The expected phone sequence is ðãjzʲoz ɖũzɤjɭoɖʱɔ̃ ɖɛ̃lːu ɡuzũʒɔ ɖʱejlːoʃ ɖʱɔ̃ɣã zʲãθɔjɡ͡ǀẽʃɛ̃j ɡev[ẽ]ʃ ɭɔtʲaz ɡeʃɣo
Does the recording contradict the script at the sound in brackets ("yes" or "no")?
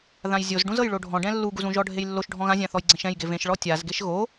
no